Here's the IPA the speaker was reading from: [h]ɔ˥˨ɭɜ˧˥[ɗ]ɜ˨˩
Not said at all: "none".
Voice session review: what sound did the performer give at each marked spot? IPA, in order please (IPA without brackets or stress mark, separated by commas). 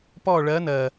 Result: p, n